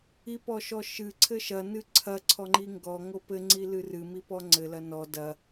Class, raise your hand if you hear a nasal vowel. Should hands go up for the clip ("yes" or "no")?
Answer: no